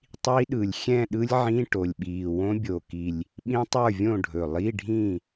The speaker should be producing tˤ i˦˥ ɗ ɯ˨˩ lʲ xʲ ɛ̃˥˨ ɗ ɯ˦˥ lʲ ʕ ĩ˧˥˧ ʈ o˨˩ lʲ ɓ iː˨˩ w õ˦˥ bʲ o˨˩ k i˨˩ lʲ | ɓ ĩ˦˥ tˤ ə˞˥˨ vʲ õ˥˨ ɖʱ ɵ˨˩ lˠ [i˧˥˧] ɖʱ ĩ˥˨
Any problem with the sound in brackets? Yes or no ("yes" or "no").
no